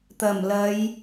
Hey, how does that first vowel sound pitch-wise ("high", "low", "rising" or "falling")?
low